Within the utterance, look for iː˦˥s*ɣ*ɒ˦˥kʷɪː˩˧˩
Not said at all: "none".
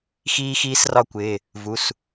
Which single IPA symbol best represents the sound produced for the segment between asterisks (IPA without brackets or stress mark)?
r